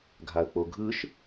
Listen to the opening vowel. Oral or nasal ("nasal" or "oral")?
oral